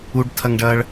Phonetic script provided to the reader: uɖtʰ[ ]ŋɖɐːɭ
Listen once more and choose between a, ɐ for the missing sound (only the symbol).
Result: ɐ